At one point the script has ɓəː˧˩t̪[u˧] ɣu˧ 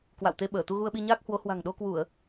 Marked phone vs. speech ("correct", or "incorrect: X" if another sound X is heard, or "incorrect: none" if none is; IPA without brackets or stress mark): correct